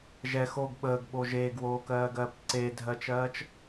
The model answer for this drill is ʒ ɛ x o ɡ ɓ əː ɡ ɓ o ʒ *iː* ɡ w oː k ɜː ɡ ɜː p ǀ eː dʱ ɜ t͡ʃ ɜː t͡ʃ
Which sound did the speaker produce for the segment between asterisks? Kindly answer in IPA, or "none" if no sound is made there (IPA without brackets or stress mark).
eː